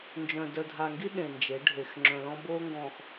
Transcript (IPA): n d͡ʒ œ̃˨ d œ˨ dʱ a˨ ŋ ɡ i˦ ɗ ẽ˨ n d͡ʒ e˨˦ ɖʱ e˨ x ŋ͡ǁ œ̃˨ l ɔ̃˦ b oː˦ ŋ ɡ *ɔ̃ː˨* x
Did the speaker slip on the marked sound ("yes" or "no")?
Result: no